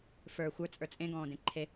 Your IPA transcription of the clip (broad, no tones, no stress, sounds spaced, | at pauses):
f ə˞ xʷ ə˞ t͡sʼ ə˞ t͡sʼ ẽ ɡ ɔ̃ː d ẽ ǃʰ e